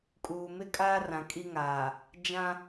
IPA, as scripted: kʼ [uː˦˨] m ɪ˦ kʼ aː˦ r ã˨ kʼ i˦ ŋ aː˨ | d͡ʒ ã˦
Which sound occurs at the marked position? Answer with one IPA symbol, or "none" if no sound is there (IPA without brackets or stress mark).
uː˨